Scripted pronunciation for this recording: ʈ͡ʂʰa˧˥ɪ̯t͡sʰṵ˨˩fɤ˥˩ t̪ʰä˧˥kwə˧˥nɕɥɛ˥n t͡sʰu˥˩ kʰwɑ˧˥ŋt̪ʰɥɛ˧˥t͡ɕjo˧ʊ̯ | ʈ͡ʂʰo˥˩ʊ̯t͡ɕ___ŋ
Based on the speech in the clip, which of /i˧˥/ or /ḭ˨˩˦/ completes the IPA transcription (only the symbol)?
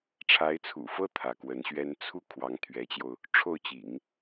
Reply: ḭ˨˩˦